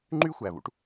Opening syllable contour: high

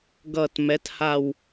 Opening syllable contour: low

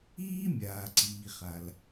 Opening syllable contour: high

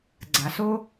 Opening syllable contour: low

